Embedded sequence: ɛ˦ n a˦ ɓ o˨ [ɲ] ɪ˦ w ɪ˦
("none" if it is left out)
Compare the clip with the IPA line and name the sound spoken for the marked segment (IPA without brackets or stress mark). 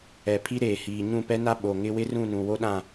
ŋ